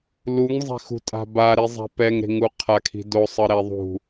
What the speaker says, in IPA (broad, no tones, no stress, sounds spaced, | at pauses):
l u ŋ zˤ e̤ x ṳ tʼ a̤ b a ɾ i zˤ ɛ̤ p ɛ ŋ ɾ e̤ ŋ u qʰ a kʰ i̤ d o sˤ ɯ ɾ ɛ ðˤ ṳ